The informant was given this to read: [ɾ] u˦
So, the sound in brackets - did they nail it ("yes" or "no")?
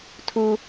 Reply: no